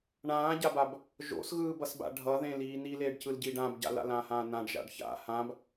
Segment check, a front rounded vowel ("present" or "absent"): absent